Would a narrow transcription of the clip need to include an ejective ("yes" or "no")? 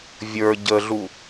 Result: no